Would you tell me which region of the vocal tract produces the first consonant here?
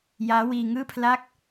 palate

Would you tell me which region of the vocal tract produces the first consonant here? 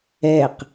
uvula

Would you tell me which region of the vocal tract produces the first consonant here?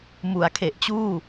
lips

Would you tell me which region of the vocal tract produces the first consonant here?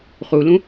uvula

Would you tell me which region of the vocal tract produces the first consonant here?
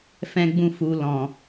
lips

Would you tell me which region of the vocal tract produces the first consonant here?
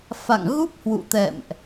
lips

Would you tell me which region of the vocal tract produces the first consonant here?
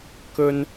velum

